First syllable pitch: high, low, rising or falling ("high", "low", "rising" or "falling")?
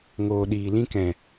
low